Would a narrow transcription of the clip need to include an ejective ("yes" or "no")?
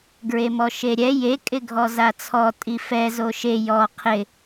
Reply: yes